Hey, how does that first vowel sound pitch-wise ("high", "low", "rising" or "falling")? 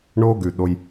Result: high